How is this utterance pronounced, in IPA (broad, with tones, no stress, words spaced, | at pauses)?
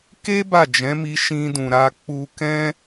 ke˦ ba˦˨d͡ʒɛ̃˨˦mi˧ ʃĩ˧dũ˨ɾa˧ k͡pu˧kɛ̃˦